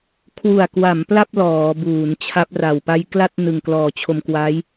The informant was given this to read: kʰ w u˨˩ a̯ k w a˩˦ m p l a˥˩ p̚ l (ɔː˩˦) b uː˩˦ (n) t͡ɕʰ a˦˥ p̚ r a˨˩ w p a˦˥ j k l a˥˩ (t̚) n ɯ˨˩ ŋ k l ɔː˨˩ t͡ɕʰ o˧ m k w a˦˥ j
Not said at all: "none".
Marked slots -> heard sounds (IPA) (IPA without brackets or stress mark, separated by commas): ɔː˩˦, n, t̚